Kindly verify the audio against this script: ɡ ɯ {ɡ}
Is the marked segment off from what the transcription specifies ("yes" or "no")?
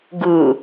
yes